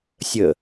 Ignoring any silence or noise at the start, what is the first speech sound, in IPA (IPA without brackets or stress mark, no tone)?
sʲ